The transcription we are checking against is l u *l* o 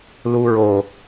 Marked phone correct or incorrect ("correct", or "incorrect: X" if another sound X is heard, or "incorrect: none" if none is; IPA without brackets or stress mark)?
incorrect: ɹ